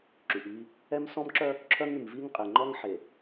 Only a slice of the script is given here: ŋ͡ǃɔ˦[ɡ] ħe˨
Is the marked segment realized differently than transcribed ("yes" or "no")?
yes